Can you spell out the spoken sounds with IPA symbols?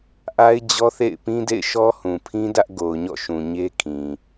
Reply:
ʔa˦ɪ̯d͡ʑɔ˦θḛ˦˨ɪ̯ pĩ˦dḛ˦˨ɪ̯ʃɔ˦ hũ˨pʰĩ˦dä˦ʔ ɡo˨ʊ̯ɲɔ̰˦˨ ʃũ˨ɲe˦kʰĩ˨

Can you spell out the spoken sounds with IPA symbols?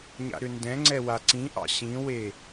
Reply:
ɲa̰ɾʏndɛ̃ŋ͡ǀɛ waǀĩʔɑ̰ ɕĩwe

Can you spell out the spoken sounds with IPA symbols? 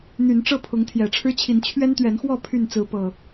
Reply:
n̪y˨˦n ʈ͡ʂɤ˥˨pʰʊ˨˦ŋ t̪ʰjɛ˨˩ʈ͡ʂʰɻ̩˦t͡ɕʰi˨˦n t͡ɕʰɥɛ˦nt̪ɥɛ˨˦nxwɔ˥˨ pʰy˥˨nt͡sɹ̩˨˦ pɤ˨˩

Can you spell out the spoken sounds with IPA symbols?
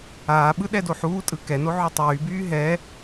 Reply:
aːɓɯ ɗɛdoħuːtʼɯ kɛno ʕytˤyːbyː ɦɛ

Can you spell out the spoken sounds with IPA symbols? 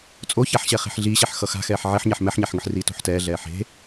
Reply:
t͡sʼoçaħɕɛ χe̤ħɮiːɕɛħ xʌxa̤xɛːħ ʕeħɲɛħ mɛħɲaħŋɯħriː to̤ħtɛːɮɛː ħe̤

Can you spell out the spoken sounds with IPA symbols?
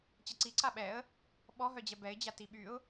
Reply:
t͡ɕɛǀi ǀaɓɛə̯ | ɓɔɦœd͡ʑɛ bɛɪ̯d͡ʑa tiɓyʊ̯

